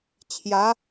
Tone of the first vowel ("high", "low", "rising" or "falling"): rising